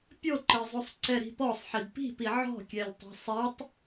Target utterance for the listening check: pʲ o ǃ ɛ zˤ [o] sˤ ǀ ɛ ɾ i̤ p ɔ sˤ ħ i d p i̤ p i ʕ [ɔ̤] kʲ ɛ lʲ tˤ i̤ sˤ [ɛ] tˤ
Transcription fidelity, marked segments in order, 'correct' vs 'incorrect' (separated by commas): incorrect, correct, correct